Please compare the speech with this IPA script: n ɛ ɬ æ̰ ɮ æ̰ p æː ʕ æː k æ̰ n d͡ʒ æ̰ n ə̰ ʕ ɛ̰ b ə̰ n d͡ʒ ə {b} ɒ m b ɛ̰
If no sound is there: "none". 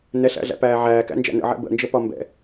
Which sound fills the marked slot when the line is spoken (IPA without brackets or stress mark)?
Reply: p